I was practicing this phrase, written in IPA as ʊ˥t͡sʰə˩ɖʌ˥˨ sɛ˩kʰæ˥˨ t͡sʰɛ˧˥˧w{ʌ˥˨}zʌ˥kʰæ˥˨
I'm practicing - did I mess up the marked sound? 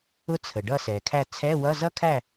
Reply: yes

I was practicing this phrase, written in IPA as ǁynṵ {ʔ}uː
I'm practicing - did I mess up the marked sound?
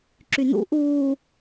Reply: no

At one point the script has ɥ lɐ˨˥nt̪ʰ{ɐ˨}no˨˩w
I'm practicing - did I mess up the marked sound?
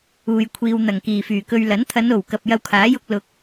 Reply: yes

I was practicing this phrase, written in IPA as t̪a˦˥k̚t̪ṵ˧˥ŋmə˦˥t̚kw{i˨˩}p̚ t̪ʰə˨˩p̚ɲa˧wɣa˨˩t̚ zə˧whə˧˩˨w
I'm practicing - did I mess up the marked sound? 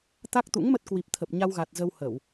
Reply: no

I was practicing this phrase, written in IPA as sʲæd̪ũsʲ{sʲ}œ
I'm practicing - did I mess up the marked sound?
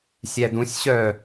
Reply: yes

